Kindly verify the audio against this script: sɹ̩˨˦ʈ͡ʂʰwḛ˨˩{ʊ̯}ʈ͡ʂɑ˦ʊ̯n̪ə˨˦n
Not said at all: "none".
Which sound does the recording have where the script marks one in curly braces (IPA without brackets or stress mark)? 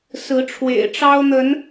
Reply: ɪ̯